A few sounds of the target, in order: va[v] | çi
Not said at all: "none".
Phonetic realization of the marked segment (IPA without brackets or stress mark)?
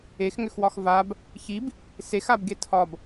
b